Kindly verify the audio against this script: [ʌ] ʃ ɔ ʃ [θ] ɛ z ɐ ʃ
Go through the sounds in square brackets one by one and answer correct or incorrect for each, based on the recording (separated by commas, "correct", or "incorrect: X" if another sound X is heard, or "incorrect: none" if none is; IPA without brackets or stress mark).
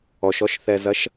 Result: incorrect: ɔ, correct